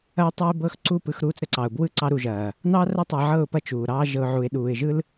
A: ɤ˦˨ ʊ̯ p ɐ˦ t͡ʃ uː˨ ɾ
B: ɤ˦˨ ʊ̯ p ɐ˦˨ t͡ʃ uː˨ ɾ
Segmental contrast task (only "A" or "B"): B